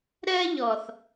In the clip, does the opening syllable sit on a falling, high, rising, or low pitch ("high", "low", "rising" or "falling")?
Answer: high